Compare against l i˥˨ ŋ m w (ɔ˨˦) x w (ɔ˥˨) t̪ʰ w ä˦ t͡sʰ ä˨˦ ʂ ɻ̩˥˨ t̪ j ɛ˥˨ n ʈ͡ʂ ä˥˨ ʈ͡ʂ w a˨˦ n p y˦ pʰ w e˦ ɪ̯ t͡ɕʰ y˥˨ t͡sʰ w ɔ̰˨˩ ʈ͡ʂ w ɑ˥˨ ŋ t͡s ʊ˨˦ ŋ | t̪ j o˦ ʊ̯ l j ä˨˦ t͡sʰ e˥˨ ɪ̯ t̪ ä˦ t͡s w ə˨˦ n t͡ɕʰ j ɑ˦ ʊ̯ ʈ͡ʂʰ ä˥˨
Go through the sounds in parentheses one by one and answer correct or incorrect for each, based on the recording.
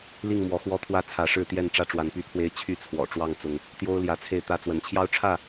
correct, incorrect

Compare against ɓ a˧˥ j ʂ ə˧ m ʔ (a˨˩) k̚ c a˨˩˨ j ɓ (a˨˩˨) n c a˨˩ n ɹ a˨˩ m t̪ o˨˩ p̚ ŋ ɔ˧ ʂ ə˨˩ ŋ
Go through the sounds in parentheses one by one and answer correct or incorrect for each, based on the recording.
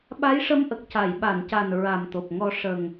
incorrect, correct

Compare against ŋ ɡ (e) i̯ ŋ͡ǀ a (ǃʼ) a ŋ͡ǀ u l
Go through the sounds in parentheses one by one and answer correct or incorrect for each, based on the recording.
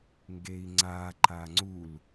correct, incorrect

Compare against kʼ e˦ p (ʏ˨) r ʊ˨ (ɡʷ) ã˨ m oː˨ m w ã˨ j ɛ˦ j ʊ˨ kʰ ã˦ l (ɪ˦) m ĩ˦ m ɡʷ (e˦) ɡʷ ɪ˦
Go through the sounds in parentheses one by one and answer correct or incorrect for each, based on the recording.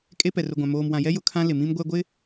incorrect, correct, incorrect, incorrect

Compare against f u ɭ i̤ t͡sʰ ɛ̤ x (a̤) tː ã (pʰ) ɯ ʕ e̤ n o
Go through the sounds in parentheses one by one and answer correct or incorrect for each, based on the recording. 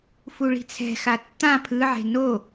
incorrect, correct

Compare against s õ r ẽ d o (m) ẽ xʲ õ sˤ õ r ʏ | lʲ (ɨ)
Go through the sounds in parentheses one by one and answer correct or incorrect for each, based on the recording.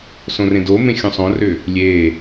correct, incorrect

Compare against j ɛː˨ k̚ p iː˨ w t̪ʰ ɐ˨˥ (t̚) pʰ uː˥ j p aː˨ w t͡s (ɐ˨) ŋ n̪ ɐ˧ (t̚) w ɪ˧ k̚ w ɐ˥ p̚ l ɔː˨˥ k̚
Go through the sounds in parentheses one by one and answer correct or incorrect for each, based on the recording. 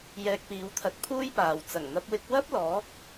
correct, incorrect, incorrect

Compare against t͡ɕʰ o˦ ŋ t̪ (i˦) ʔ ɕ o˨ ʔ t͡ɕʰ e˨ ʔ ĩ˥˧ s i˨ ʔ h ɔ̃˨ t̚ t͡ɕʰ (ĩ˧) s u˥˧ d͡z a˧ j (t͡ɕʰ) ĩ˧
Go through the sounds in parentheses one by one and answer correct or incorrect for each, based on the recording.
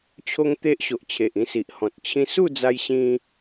incorrect, correct, incorrect

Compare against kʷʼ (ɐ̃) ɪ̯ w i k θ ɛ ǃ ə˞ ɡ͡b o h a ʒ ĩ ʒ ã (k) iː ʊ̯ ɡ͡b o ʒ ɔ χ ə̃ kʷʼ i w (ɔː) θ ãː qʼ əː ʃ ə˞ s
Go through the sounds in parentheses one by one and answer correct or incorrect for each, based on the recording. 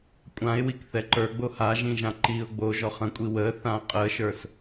incorrect, incorrect, incorrect

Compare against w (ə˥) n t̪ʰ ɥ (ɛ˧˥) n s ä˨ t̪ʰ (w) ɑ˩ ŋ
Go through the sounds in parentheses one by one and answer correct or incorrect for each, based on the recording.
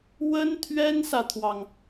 correct, incorrect, correct

